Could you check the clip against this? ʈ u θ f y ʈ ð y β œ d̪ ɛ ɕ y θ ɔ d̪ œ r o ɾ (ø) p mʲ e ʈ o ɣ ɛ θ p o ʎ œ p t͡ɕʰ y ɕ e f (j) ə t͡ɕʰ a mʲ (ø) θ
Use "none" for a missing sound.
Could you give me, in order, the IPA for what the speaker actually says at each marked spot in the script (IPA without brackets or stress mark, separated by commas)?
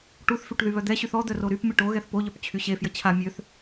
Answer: y, j, ø